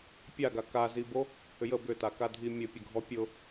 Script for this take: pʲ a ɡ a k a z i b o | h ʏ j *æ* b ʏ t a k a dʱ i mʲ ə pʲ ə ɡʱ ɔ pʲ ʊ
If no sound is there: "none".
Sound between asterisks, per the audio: ə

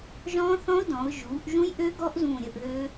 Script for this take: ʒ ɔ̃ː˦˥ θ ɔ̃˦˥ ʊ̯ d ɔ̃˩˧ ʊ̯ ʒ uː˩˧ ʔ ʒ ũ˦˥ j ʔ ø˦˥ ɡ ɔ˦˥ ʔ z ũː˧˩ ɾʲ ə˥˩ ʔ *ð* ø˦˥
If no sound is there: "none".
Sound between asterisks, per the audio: ð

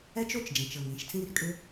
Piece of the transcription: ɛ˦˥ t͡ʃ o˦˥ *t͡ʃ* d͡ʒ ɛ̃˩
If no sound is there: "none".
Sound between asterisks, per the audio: t͡ʃ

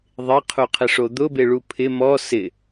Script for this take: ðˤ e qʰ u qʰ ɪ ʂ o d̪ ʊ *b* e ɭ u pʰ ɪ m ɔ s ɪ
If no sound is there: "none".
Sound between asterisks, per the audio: b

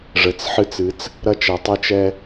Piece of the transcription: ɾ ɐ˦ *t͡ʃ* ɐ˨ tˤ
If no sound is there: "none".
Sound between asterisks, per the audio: t͡ʃ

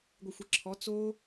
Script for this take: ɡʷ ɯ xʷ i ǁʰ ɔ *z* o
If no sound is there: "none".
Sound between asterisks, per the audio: t͡s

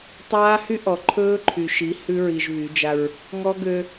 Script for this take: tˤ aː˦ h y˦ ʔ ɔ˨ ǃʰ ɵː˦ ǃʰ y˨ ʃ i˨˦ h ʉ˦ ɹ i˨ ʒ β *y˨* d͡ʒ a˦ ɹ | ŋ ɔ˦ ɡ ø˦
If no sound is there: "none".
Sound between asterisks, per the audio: y˨˦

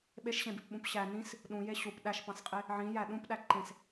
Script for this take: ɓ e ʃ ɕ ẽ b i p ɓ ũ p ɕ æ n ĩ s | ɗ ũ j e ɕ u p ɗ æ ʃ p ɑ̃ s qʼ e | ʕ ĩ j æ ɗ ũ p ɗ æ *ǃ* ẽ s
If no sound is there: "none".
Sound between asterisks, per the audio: ǃ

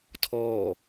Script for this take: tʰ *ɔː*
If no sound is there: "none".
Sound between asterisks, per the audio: ɔː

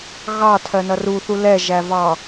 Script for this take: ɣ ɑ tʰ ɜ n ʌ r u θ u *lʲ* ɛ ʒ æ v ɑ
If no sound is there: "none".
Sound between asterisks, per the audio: l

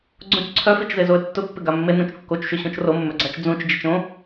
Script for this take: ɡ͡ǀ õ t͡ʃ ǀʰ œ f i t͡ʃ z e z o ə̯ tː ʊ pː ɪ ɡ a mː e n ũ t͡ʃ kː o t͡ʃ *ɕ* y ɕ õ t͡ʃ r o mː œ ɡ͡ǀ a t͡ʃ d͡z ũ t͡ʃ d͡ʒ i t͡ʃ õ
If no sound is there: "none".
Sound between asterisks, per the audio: ʃ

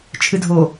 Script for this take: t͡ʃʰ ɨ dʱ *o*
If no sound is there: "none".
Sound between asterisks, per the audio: o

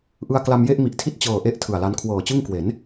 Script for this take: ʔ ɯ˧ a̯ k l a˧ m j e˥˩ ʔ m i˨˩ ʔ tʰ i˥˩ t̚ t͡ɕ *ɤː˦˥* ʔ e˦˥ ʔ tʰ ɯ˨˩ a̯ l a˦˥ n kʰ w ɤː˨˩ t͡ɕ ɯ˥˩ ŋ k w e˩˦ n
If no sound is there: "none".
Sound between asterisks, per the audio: ɤː˨˩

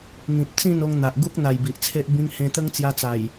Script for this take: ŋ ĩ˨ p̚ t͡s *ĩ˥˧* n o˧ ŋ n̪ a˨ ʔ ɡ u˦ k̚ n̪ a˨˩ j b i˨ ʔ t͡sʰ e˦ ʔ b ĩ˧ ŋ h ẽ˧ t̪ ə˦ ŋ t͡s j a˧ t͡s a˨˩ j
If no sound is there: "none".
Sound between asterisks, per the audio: ĩ˥˧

